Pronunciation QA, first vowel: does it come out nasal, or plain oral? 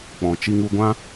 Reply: nasal